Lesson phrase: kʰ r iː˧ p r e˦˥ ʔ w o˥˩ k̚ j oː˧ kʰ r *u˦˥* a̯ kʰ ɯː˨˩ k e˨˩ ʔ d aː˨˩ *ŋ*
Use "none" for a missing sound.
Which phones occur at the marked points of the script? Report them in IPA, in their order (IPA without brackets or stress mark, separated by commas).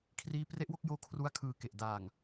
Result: u˧, ŋ